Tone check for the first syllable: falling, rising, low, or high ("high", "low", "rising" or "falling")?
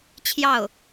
falling